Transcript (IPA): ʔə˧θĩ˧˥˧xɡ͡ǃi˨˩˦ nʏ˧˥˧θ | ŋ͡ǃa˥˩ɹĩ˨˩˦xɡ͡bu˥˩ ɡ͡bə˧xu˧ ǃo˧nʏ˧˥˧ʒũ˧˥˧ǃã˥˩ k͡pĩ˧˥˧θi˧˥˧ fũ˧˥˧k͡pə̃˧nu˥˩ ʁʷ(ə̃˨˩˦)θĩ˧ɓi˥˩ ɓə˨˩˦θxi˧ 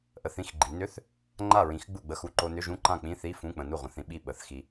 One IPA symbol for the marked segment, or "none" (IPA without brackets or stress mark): ə̃˨˩˦